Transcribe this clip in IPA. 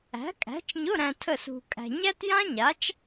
æ̤˨˥ kʼ æ̤˨˥ t͡ʃ ɲ ʊ˧˥˧ ɾ æ̃˧ tʰ ə˥˨ s ṳ˧ kʼ æ̤˧ ɲ æ˥ t j ã˥ ɲ a˨˥ t͡ʃ

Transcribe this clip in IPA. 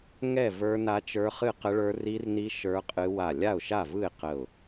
ŋ ɛ˥˨ v ə˞˦˥ n a˦˥ t͡ʃ ə˞˦˥ χ ɨ˥˨ q ə˦˥ ɭ ə˞˦˥ r i˦˥ r n i˦˥ ʃ ə˞˦˥ qʼ ɨ˦˥ w a˥˨ lʲ a˥˨ ʊ̯ ʃ a˥˨ v ɯ˥˨ ɪ̯ q ə˥˨ ʊ̯

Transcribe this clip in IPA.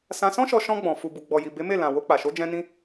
s ã˧ s ɔ̃˦ ʃ ɔ˧ ʃ ɔ̃˧ ɡ͡b ɔ̃˨ f u˨ b u˨ ɡ͡b ɔ˨ j i˨ b e˨˦ m e˦˨ l ã˨ w o˧ k͡p a˨ ʃ o˨˦ d͡ʒ ɛ̃˧ n ĩ˧

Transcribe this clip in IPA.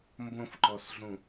m b õ f ǃ ɔ s ɮ ũ

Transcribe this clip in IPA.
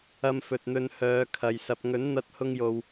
ɐ˧ m f ɵ˨ t̚ n̪ ɵ˧ n h œː˨˧ kʰ ɐ˨ j s ɐ˨ p̚ ŋ ɵ˨˥ n n̪ ɐ˧ t̚ h ʊ˧ ŋ j o˨ w

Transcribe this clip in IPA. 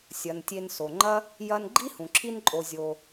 sʲ ɐ˩ n tʲ e˨ n s o˩ ŋ͡ǃ ɐ˥ | j ɐ˦ n ɡ͡ǃ i˥ h ũ˩ ǁʰ i˦ n ǃʼ o˨ zʲ o˨

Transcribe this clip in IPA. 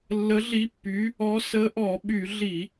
lː ə˨˦ ɮ i˨˦ pː y˨˦ | ɔ˨˦ s ə˨˦ ʔ ɔ˧˩˧ ɓ y˧˩˧ ɮ i˧˩˧

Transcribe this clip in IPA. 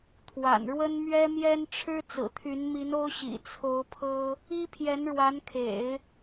t̪ʰ w a̰˨˩ n ɻ w ə˥ n m ɥ ɛ˥ m j ɛ˥ n ʈ͡ʂʰ ɻ̩˥ t͡s ɹ̩˨˩ t̪ʰ y˧˥ n m i˧˥ n o˥ ʊ̯ ɕ ḭ˨˩ t͡sʰ o˧˥ ʊ̯ pʰ ɤ˥ | i˥ pʰ j ɛ˧˥ n ɻ w a˧˥ n kʰ ḛ˨˩˦ ɪ̯

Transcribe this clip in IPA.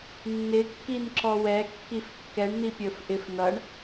nː ɪ kː i n ǁ ɔ w ɛ kː i f kː ɛ ɳ n̪ i pʲ ə˞ f ʔ ɪ f n ʌ ɳ

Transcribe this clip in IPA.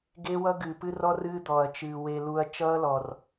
ɡ e˦ w ʌ˦ ɡ ɨː˨ p ɨ˦ r ɔ˦ r ɨː˦ d̪ ɔː˨ ɐ̯ t͡ʃ ɨː˨ w e˨ l u˨ ɐ̯ t͡ʃ ʌː˦ l ɔ˨ r

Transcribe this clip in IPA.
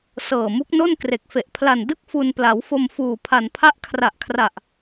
s ɤː˨˩ m u˦˥ k̚ n o˥˩ n k r e˨˩ k̚ f e˨˩ ʔ pʰ l a˨˩ n d ɯ˥˩ k̚ f u˧ n p l a˩˦ w f o˧ m f uː˨˩ pʰ a˨˩ n pʰ a˦˥ ʔ kʰ r a˨˩ ʔ kʰ r a˨˩ ʔ

